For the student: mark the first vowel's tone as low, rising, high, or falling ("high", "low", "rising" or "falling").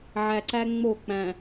low